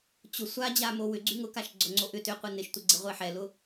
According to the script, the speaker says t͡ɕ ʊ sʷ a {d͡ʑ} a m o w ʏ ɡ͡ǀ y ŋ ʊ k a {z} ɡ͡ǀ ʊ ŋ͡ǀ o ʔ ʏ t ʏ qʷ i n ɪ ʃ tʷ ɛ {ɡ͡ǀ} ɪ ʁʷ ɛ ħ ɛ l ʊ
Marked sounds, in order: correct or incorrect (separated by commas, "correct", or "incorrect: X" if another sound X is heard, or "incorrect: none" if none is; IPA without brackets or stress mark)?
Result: correct, incorrect: ʃ, correct